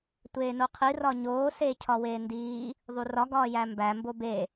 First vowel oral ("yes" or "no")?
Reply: yes